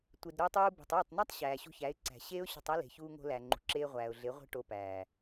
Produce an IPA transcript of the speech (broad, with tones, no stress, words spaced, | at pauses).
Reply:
tʷe˨dɾoː˧tˤuː˧ be̤˨tˤoː˦˨tˤnæ˦tˤ ɕæː˨ɕṳ˧çæ˨˦ɪ̯ǀæ̤˨ ɕeː˦ʊ̯ɕo̤˧tˤæ˦ le̤˨çuː˧ŋo̤˧læ˨ ŋ͡ǃṳ˨ǁeː˧ ʁʷæː˨ʊ̯ɮe˨˦ʁʷe̤˦ ʈo˧pæː˨